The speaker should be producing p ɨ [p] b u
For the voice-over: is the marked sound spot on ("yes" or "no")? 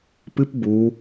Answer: yes